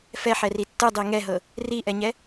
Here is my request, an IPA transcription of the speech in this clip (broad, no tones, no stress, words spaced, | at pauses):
fɛħɛri tːɯdˤi ŋɛɦɤ | riʔɛɲɛ